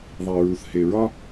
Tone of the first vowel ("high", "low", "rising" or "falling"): low